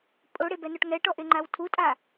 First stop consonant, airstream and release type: ejective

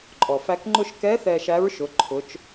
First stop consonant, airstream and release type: click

